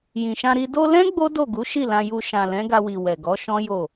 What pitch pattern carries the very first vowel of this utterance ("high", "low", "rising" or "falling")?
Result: low